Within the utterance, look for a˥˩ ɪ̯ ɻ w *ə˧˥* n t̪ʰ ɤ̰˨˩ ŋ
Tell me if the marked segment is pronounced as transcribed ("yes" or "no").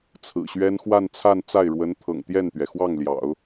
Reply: yes